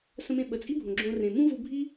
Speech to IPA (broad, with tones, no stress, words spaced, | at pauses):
sə̃˧mẽ˧ ɓə˩t͡sʼi˥bʱõ˩ ɡ͡ǁõ˧rẽ˩ mũ˥vu˧bʱi˥